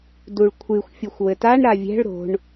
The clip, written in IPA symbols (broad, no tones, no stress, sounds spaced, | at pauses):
d u ɭ kʷʰ ɨ xʷ fʲ u xʷ w ɘ t a ɳ ɾ a vʲ ɛ̤ ɭ ɾ o̤ ɳ